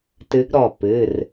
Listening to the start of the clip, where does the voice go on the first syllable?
rising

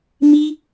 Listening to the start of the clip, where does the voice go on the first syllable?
high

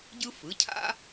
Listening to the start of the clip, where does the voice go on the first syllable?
high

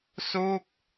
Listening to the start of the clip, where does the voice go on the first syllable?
falling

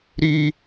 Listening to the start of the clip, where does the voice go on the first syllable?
high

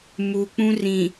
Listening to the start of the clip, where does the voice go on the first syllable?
low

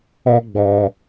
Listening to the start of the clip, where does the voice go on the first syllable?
high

